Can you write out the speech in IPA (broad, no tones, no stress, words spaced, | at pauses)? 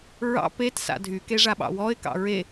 ɹɑ̰ pet sa̰dʱykeʐa ɓɑ̰wɔɪ̯kɑ̰ ɹe